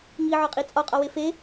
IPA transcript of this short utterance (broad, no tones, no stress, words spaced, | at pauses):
ŋiʕɒqʼi t͡sʼɒqʼɒwe fe